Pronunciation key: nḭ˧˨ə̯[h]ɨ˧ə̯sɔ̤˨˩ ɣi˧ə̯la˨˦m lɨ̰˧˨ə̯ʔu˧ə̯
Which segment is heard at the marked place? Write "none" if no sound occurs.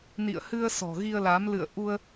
h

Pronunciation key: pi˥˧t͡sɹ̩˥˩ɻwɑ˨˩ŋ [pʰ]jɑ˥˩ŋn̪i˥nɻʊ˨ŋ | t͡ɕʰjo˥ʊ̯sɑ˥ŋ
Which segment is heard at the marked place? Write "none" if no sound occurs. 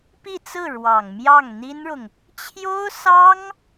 m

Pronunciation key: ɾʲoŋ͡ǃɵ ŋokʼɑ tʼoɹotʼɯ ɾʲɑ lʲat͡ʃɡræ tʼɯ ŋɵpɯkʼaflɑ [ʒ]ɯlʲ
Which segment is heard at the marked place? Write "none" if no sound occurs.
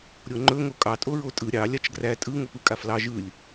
ʒ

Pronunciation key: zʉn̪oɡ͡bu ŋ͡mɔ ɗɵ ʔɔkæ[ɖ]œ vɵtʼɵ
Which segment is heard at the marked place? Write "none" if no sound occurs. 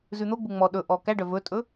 ɖ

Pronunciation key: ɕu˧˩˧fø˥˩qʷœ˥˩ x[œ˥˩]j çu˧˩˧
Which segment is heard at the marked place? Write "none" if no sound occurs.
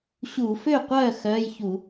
œ˧˥˧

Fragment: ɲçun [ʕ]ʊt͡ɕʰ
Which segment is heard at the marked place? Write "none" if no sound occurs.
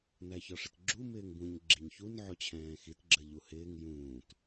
ʕ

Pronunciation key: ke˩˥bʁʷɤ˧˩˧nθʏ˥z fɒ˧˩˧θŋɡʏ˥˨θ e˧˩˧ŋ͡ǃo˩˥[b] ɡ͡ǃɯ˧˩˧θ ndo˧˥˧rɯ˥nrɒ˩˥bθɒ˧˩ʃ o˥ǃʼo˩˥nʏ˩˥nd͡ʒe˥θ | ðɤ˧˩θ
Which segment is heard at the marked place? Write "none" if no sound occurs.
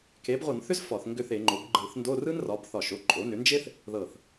b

